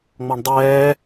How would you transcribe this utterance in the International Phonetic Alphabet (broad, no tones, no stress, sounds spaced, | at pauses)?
ŋ͡m ɔ ɳ dˤ ɛː